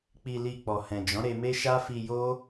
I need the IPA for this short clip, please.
k͡p i˧ l i˧ k͡p ɔ˨ h ɛ̃˨ d͡ʒ ɔ̃˨˦ ɾ e˧ m e˦ ʃ a˦ f i˧ j o˦

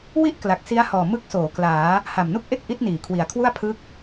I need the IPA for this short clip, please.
w i˥˩ ʔ k l a˨˩ k̚ s i˦˥ a̯ h ɔː˨˩ m ɯ˦˥ k̚ s oː˩˦ k l aː˩˦ | h a˨˩ m n u˥˩ k̚ ʔ e˥˩ k̚ ʔ i˦˥ t̚ n iː˩˦ kʰ w i˨˩ a̯ kʰ w u˥˩ a̯ pʰ ɯ˦˥ k̚

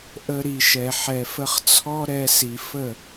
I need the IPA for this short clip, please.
ʔ ə˧ ɾ i˨ ʃ ɛ˨ ħ ɛ˨ f ə˧ χ t͡sʰ ɔ˦ ɾ ɛ˧ s i˨ f ə˦˨

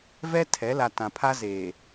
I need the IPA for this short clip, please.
v ɛ˦ tʰ ɛ˨˦ l a˨ t ã˨ pʰ a˦ z eː˨

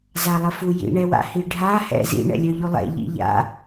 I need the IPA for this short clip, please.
z a lˠ ə f u j ḭ ɳ ɛ w a̰ h i ɖʱ a h ɛ̰ z ḭ ɳ ɛ̰ lʲ œ ʎ u lˠ ɛ̰ ʎ ḭ ʎ a̰

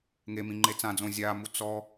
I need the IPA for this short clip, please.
ŋ e m ĩ ŋ͡ǃ e t͡s ã d͡z õ zʲ a m u t͡s ɔ

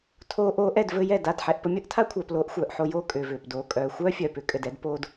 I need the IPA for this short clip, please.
tʰ oː˧ ʔ oː˧ ʔ ɛ˦˨ d v ɘ˧ j ɛ˦˨ d a˦˨ d ħ ɛ˧ ʔ p ə˨˦ mʲ əː˦ ʔ tʰ a˦ kʷʰ œː˨ p l oː˧ ʔ xʷ œː˨ ʔ ħ o˧ j oː˦ kʼ ʏː˨ v ʏː˨ p d oː˨ kʼ œː˨ xʷ œː˦ fʲ œː˨ p ʏ˧ kʼ ɘ˨ d ɛ˧ d p oː˧ d

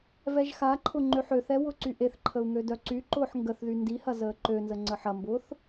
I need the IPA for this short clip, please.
v ɛ ʒ x a ǃʰ ʊ ŋ͡ǃ ø ħ ø θ ɛ w ʊ ǀ y ʔ e θ ǃʰ ə u̯ ŋ ø d œ ǀ y ǃ ʊː ħ ŋ ɡ ə θ ð y n d i h ɐ z əː ǃ ø n z ə ŋ͡ǀ ə ħ ɐ m b ʊː θ

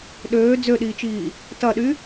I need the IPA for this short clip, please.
ɗ øː d͡z ø ɗ iː t͡ʃ iː | t ɐ ɗ y

